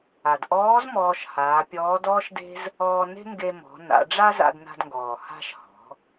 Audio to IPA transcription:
a˩dʔɔː˧˥z mɔː˧ʃhaː˩˧pʲɔː˧˥d ɔː˥ʃde̤˥z | ɔː˧ne̤˥ ŋɡe˧mɔ̤˩˧na̰˩˧ ɖ͡ʐa˥za̰˧dna̤˧dŋɡɔː˩ ha̤˧ʃhɔ̤˩˧

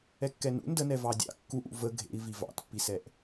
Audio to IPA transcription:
ɛkːɛnṵ ndənɛ vɑdʲɑ̰ kːuʔṵ və ɡʱḛi̯ vivɑ̰tpːisɛʔ

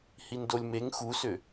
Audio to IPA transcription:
hindolʲmeŋ xusʏ

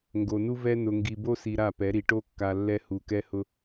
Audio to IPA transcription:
ŋɡo˨nu˦vɛ˦ nʊ˨ŋɡi˨bo˦si˨ ɾa˦˨pɛ˨˦ɾi˨ ʈo˦kːa˨ lːɛ˦ hu˨kɛ˦hʊ˦

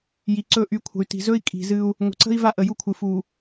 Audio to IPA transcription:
ji˨ǀɵ˦˨ ʔy˨˦kʷʰə̤˨y̯ti̤˨ zɵ˦i̯kʼi̤˨ zɨ˦u̯ | ŋʷə̤˨ǀə̤˦i̯ va˦ʔə˨ju˦kʷʰɨ˨ fu˨

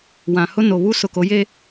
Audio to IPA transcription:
wã˨hʊ˦ no˨βu˦ sʊ˨ko˨˦je˦

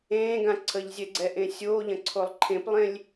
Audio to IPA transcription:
ẽːɡã ǀʰəʎzʲɛɡ͡ǀɛʔẽ sʲoːʎɐ̃ǀʰolˠ ǃʰẽplˠẽlʲ

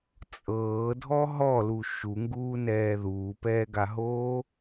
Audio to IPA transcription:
t͡sʼɤːdʱɔ ɦɔlu ʃuŋɡuːnɛː ðuːpɛːɡaɦoː

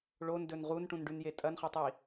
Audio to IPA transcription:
ɭondɵn ʁunʈũnɖʉnje tʼɐnχɐtˤi

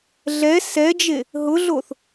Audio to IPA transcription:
ɮɛ sɛd͡ʒe | ɦʊɮoθ

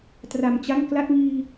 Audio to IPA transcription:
tra˨˩mt͡ɕa˥˩ŋ kla˥˩t̚ŋiː˧

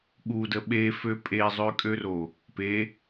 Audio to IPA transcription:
ɠudə ɓefø pʼezˤøkʼøro | pe

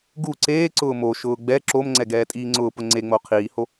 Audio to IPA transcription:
ɡu ǀeː ǀʊːmoʃʊː ɡ͡bɛ ǁomŋ͡ǀɛ ɡɛːtʼiːŋ͡ǀʊːpʊ ŋ͡ǀeŋ͡mo qʰiːho

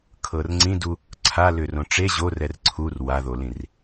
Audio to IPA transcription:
kʰɤrŋ͡ǀĩdu | ǀʰa lʏrõʈ͡ʂe ʑorɛr ǀʰur waðolĩr

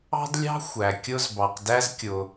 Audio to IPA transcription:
ɑ̤˥dlʲɑ̤˥ xʷæ˩kʲʊ˧z bɑ˩qdæ˧zkʲʊ˩

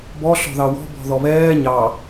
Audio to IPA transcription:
bɔ ɬɔ̤ðɑwɔ̤ bɔ̤ðɔβɛː ɲɑ

